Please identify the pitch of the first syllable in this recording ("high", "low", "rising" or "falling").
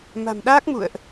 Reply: low